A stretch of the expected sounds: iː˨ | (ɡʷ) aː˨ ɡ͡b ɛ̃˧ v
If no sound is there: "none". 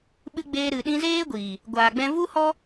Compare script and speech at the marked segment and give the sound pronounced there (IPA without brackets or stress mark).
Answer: ɡʷ